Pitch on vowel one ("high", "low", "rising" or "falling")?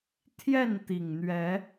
falling